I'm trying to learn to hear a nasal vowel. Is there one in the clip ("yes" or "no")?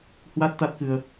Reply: no